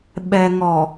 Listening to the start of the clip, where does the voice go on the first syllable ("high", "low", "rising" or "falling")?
low